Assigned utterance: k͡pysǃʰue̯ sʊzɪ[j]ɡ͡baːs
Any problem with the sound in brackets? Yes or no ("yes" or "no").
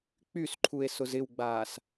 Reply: yes